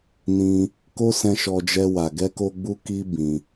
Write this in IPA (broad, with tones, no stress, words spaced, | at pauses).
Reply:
nĩ˧ | ko˧ sɛ̃˧ʃɔ˧d͡ʒɛ˧ wa˨ɡɛ˧ko˧ ɡ͡bu˦ki˦ bĩ˧